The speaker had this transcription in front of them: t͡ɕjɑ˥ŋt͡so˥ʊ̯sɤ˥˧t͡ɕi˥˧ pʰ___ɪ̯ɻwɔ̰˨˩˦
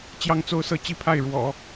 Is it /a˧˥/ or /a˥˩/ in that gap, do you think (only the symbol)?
a˥˩